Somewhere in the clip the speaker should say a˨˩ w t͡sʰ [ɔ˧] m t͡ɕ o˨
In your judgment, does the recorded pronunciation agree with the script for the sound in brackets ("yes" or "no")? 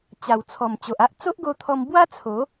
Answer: no